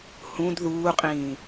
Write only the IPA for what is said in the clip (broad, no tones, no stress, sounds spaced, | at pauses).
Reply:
h ũ d ð uː qʼ ĩː